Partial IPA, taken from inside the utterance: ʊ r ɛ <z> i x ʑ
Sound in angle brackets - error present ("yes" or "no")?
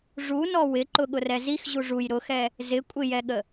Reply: no